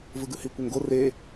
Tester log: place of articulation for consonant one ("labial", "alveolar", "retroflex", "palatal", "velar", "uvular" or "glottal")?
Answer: labial